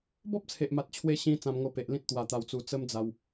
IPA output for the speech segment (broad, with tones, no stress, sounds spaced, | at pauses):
b ɔ˦ p̚ t͡sʰ e˨ ʔ m a˨ t̚ t͡ɕʰ w e˧ ɕ ĩ˧ t͡s ã˧ m ŋ o˧ p e˨ ʔ l ĩ˦ t̚ t̪ w a˧ t̪ a˧ w t͡s u˧ t͡s ə˦ m d͡z a˧ w